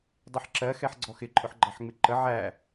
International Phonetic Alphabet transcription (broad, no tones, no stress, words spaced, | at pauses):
dˤiħǁɜxɛħɡ͡ǀɔ xɪǃʼʊħɡ͡ǃɑħ ŋ͡mɪǃə ʕæ